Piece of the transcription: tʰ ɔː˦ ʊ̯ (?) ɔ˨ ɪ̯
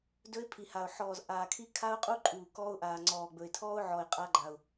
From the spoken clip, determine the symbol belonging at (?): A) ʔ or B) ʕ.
B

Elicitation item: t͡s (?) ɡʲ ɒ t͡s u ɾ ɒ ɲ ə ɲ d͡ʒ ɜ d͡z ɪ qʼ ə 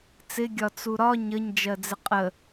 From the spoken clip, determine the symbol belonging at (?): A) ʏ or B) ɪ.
B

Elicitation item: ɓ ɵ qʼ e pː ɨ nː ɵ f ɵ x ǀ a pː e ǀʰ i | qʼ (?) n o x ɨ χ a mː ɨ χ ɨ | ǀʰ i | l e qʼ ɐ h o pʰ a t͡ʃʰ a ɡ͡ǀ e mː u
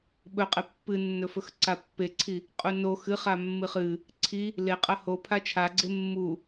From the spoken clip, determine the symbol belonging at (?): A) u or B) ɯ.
A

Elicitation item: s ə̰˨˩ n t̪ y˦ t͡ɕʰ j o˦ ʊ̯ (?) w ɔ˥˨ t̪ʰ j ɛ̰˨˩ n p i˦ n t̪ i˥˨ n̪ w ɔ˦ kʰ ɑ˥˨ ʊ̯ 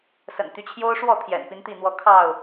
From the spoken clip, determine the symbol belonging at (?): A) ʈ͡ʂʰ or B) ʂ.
B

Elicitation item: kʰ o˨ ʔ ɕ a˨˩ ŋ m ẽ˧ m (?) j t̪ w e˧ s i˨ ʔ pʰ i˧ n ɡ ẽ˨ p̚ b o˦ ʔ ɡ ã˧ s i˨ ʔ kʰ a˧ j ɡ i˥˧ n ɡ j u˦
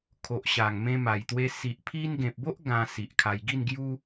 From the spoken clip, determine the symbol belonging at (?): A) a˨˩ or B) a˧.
A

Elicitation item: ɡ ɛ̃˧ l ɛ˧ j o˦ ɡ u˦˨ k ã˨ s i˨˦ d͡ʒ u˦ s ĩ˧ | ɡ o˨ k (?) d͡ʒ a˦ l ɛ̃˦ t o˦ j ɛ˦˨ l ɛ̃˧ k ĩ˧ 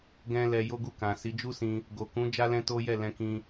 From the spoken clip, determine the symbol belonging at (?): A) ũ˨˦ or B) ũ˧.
A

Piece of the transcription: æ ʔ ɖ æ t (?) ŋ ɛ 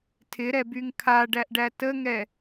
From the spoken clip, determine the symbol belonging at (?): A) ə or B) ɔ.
A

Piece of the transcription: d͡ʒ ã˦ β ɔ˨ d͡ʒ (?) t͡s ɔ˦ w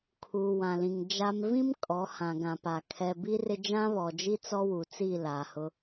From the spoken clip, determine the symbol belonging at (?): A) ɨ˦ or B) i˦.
B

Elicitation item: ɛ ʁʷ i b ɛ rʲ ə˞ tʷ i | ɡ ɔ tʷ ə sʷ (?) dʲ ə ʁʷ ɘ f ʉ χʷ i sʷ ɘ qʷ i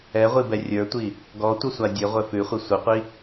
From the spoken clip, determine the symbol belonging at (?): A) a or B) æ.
A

